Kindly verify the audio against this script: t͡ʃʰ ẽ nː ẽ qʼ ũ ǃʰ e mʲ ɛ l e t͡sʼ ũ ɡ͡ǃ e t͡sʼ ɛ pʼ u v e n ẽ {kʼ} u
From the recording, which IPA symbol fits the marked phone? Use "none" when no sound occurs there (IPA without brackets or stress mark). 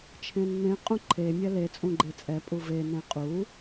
qʼ